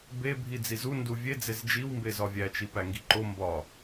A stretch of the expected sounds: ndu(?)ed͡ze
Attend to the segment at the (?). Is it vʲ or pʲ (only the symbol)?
vʲ